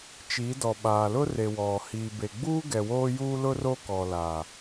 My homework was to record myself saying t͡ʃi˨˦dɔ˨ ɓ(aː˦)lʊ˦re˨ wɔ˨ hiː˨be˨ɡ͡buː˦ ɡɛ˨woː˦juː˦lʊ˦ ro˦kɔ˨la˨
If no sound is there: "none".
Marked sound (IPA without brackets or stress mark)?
aː˨